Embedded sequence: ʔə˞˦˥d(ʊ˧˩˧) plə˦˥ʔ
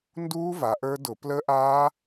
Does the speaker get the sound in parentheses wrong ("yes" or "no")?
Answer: no